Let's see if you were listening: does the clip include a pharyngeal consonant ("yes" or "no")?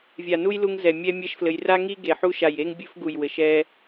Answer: yes